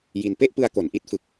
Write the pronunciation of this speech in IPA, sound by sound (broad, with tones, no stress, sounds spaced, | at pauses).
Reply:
j i˧ n p e˥˩ ʔ p ɯ˧ a̯ k o˩˦ n ʔ i˦˥ t̚ f ɯ˨˩ k̚